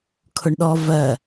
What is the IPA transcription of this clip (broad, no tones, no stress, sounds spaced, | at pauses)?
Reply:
kʰ ʊ ɳ ɗ ɔ v ɜ